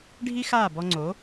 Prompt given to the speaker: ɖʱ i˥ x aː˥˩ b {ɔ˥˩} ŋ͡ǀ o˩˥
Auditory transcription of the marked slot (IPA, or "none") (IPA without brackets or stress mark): ɔ˧